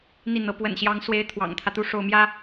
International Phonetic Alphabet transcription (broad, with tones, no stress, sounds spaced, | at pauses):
n̪ i˥˩ n̪ ɤ˧˥ p w ə̰˨˩ n ɕ j ɑ˧˥ ŋ s w e˧˥ ɪ̯ t̪ʰ w ɑ̰˨˩ ŋ t̪ʰ ä˦ t̪ u˥˧ ʂ o˥˩ ʊ̯ m j ä˥